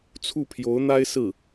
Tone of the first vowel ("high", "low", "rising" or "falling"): falling